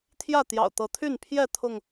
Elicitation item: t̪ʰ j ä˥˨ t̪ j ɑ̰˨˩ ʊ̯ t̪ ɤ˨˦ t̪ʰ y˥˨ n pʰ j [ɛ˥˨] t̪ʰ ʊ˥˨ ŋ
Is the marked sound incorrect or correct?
correct